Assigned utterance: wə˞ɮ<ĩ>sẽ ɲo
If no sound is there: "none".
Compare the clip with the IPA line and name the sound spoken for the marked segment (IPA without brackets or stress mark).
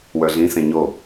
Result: ĩ